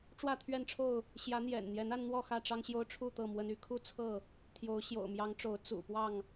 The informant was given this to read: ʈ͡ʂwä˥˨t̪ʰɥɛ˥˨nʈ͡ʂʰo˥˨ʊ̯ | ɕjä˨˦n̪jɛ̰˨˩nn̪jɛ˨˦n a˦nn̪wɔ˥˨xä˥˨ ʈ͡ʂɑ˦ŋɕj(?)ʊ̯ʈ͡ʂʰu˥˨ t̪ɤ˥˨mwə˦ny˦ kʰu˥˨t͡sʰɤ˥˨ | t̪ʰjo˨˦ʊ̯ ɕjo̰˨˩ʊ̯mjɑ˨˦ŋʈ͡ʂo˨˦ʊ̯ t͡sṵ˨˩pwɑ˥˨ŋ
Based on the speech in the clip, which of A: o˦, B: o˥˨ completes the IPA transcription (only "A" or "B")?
A